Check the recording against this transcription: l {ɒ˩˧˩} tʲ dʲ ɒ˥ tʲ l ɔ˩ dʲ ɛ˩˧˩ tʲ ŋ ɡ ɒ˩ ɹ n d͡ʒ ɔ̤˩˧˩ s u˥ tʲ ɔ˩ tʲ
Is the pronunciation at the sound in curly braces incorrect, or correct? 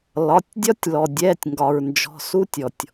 correct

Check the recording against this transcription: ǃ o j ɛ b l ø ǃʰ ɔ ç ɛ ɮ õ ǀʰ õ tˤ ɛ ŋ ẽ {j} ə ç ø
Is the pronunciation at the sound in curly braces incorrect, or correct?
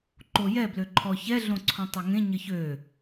incorrect: ɲ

